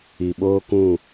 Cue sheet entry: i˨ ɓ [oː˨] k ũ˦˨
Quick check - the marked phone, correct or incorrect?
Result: incorrect